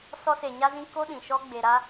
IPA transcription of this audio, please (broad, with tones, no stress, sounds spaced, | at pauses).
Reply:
s ɔ˧ s e˨ ɲ a˧ z ĩ˧ k o˧ ɗ ĩ˨ ʃ ɔ˧ ɡ͡b e˨ ɾ a˧